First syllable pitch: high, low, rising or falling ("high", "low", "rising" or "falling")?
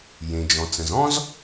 low